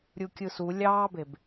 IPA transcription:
ɾʲukʲɯsu lʲɑːbeb

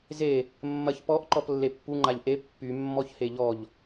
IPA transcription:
ze | mːɐç pɔʔ ǃɔplːepːu ŋ͡ǃaʎʔe pːy mːɔçheʎɔʎ

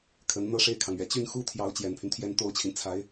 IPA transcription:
kʰə˧˥n n̪ɤ˥˧ʂe˥˩ɪ̯kʰɑ˩ŋɥɛ˨˩ t͡ɕy˥˩nxu˥t̪ʰjɑ˧˥ʊ̯ t͡ɕjɛ˨˩npʰy˦nt̪ʰjɛ˥˩n t̪o˥ʊ̯t͡ɕʰi˨n t͡sʰa˧˥ɪ̯

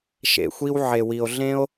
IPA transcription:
ʃḛ˨xʷi˧w ʕe˨wi˨o̯ ɮẽ˦o̯

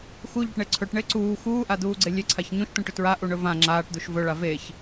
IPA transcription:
xuʎɵʈɳe ǀʰɵʈɳe ǀuː xuːʔad̪uːɡ͡ǀe lʲeǀʰaç ɲũʃt̪ũʈɵ tɹaʔuɳɵ vã ŋ͡ǁaːʈd̪uʃ vɵɭa veç

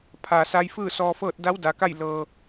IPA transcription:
pʰaː˩sa˧j fɯː˥˨sɔː˧fɤː˥˨t̚ da˧˥wda˩˧ka˥˨j lɤː˧

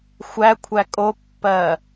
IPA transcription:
xʷækʷʰæ kʼopːɜː

